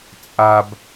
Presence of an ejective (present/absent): present